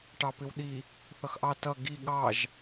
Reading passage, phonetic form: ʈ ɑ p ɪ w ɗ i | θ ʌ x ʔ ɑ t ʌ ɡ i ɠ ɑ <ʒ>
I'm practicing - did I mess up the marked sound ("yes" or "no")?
no